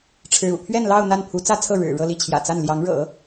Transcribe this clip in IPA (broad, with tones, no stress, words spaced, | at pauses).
ʈ͡ʂʰɻ̩˧˥ṵ˨˩ pʰɥɛ˥˧nlɑ˥˧ʊ̯ n̪a˥˩npʰu˧˥t͡sä˥t͡sʰɤ˥˩ ɻɻ̩˨˩ ɻɤ˥˧li˥˩t͡ɕʰjä̰˨˩t͡sa˥˩n ljɑ˧˥ŋɻɤ̰˨˩˦